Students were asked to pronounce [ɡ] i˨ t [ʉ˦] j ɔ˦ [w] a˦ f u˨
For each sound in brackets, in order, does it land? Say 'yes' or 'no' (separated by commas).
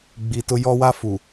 no, no, yes